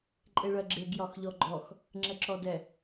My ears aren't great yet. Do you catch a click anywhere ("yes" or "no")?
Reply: yes